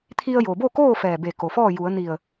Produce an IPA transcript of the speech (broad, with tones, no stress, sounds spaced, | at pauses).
t̪ʰ i˧ ə̯ j o˩ b o˥˨ k oː˥˨ f ɛː˧˩ b e˧˩ k o˩ f ɔː˥˨ j u˩˧ ə̯ n i˧˩ ə̯